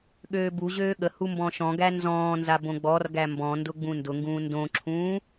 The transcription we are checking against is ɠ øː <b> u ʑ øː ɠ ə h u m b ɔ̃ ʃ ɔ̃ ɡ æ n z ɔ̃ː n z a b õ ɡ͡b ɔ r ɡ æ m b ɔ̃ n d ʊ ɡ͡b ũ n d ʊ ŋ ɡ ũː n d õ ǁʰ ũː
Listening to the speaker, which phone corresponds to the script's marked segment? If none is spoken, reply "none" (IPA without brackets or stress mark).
b